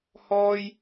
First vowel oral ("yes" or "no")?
yes